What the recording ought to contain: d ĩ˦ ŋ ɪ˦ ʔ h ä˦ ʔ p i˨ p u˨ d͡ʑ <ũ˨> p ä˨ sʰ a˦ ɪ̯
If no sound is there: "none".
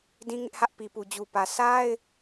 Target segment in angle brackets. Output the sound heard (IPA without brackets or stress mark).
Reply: u˨